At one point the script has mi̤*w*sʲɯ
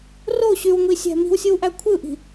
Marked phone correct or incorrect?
correct